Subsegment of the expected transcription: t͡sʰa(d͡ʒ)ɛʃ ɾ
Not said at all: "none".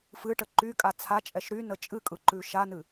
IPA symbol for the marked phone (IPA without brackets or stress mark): t͡ʃʼ